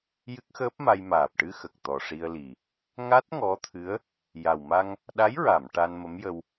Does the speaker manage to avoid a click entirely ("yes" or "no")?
yes